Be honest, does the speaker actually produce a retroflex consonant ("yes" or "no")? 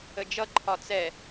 no